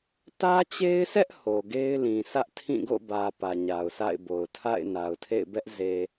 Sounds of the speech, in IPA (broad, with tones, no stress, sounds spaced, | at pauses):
t ä˦ t͡ɕ e˦ ɪ̯ s ɛ˦ ʔ h o˨ ɡ e˦ ɪ̯ l ĩ˨ sʰ ä˦ ʔ tʰ ĩ˦˨ ɡ o̰˦˨ b ä˨ p ä˨ ɲ a˨ ʊ̯ sʰ a̰˦˨ ɪ̯ b o˨ ʊ̯ tʰ a̰˦˨ ɪ̯ n a˨ ʊ̯ tʰ ḛ˦˨ ɪ̯ b ɛ˦ ʔ z e˨